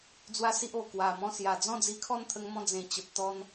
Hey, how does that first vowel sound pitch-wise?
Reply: high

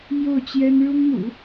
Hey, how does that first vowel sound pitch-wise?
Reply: falling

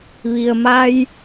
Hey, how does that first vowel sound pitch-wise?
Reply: low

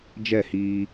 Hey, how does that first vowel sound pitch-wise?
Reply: falling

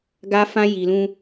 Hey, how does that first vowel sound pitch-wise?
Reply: high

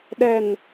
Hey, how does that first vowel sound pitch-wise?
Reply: low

